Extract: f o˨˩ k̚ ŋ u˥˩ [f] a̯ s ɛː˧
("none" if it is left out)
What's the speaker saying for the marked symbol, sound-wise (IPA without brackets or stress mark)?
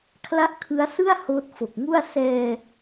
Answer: none